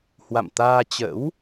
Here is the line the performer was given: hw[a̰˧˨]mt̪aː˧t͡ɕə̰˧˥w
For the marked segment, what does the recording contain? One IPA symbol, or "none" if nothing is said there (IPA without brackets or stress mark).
a̰˧˨